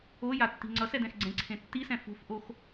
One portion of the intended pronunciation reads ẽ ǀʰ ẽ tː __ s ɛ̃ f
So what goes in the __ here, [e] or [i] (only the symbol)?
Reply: i